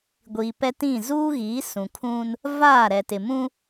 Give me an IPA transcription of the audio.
ɡʷiː˨pɛ˦tĩ˦˨ zuː˦ɣiː˨˦ sũ˨kʰũ˦n | vaː˦˨ɾɛ˨tɪ˨ mũ˦

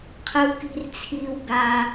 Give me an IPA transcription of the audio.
qʰə˧wki̤˧rt͡sʰiː˧w ɡa˧

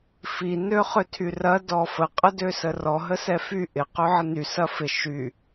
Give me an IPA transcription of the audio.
fi nøχøtʰyrɐ dɔfə qʼədøsərɔ ɦəsɛfy ʔɪ qøʕəny sɐfɪ ʃy

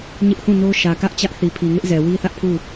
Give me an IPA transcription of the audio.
ɲɪ˦ʔhũ˦˨no˦ ʃä˨kä˦ʔt͡ɕä˦ʔ θi˨pʰi˨ŋɪ˦ʔzɛ˨ wi˦θä˦ʔpʰu˦˨

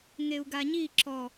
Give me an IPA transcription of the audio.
ŋeu̯ɡaɲi ǁɔ

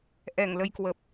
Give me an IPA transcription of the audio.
ʔɛ˧˩ŋlə˧jkwə˨˩p̚

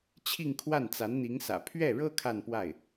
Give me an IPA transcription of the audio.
t͡ɕʰi˥˧ŋkʰwa˥˩n t͡sa˧˥nn̪i˧˥ŋsä̰˨˩ pʰɥɛ˥˩ɻɤ˥ kʰa˥˧npwa˥˩ɪ̯

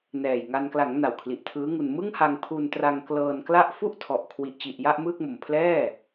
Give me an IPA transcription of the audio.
nɛː˨˩jŋa˧n kla˩˦ŋ na˨˩wkʰli˨˩ʔtʰɯː˦˥ŋu˧n mɯ˥˩ŋ ha˧ŋ pʰu˧n tra˧ŋklɤː˧nkla˥˩ʔ fu˥˩ʔtʰɔ˨˩ʔkʰwi˨˩ʔt͡ɕi˨˩ʔ ja˥˩ʔmɯː˥˩k̚ mo˨˩m pʰlɛː˥˩

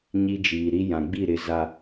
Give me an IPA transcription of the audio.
ɲi˦d͡ʒiː˨ ɾi˦ jã˨ɡ͡bi˦˨ɾɪ˨˦ za˨

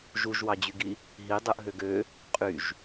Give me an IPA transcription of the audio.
ʒuʒwɑd͡ʑyɡi | ɦidˤɯʔɦøɡ ø | qʼyʒ

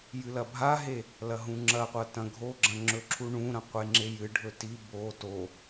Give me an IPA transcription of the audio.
jɨlɐbʱaɦe | lɐɦũŋ͡ǁɐqʷɐ tɐ̃ɡʱoɡ͡ǁɐ̃ ŋ͡ǁɵǁʰuɳũɾɐ̃ qʷeŋ͡ǁejɨɖʱɵ ti bo to

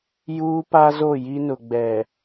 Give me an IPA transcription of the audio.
juː˦pa˦zo˦˨ ji˦nʊ˨ɡ͡bɛ˨

